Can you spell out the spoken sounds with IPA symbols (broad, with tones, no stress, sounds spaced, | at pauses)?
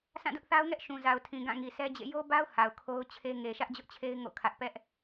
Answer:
s ã˦˨ d ʊ˦ ʔ θ a˦ ʊ̯ ŋ ɛ˦ ʔ ʃ ũ˨ z a˨ ʊ̯ tʰ ĩ˨ ɡ ã˦˨ ŋ i˨ s ɛ˦ d͡ʑ ḛ˦˨ j o˦ b a˦ ʊ̯ h a˨ ʊ̯ kʰ o˦ ʊ̯ t͡ɕʰ e˦ ŋ e˨ ʃ ä˦ ʔ d͡ʑ ʊ˦ ʔ t͡ɕʰ e˦ ɪ̯ ŋ o̰˦˨ kʰ ä˦ ʔ p ɛ˦ ʔ